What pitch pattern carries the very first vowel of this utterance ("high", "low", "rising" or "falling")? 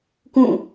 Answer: falling